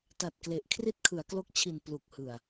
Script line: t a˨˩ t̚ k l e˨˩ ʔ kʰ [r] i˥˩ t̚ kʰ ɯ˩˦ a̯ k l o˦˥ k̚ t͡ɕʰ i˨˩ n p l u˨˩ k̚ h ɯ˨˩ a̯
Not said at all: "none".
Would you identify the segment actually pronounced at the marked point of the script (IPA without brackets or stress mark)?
r